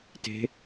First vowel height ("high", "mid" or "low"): mid